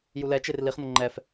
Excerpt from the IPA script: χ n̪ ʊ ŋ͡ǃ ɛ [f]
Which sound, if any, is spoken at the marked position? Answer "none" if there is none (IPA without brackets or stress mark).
f